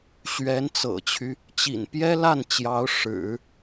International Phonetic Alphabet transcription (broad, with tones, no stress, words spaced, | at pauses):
ɕɥɛ˧˥n t͡sɤ̰˨˩t͡ɕʰy˦ | t͡ɕḭ˨˩n pjɛ˥ la˥˩n t͡ɕjɑ˧˥ʊ̯ʂɻ̩˨˩˦